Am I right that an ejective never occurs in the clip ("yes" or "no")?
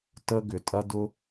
no